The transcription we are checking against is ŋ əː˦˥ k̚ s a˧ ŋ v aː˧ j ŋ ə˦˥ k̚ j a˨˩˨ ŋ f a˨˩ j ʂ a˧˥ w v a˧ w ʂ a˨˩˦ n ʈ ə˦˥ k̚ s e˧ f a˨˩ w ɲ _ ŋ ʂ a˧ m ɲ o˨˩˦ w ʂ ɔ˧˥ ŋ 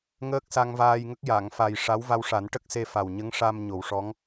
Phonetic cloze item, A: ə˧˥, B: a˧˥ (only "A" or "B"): A